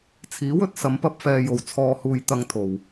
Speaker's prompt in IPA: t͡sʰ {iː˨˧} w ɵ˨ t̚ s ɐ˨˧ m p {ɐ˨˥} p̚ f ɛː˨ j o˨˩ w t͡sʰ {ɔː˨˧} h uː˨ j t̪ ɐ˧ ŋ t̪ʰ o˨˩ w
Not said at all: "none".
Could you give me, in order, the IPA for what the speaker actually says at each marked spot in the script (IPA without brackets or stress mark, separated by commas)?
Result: iː˨˥, ɐ˧, ɔː˨